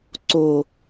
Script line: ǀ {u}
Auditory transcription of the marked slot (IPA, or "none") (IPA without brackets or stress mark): o